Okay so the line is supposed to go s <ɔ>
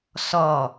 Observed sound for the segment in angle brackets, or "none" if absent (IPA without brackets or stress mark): ɔ